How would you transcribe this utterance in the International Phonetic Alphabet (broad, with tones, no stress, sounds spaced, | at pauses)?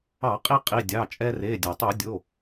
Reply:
ɑ˧˩˧ qʼ i˧ qʼ i˩˧˩ dʲ ɑ˩˧˩ t͡ʃʼ ɛ˧ r e˩˧˩ dʲ a˩ tˤ i˧˩˧ dʲ o˩˧˩